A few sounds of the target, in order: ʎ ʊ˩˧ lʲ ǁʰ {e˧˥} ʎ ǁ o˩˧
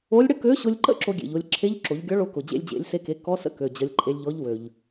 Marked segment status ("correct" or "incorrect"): correct